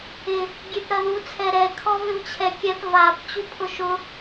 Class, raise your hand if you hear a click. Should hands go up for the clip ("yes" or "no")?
no